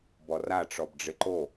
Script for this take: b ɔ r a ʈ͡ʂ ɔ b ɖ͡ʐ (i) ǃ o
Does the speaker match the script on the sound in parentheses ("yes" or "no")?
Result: no